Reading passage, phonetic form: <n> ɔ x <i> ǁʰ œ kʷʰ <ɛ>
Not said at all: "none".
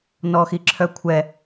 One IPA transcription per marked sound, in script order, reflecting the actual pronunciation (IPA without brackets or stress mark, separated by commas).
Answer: n, i, ɛ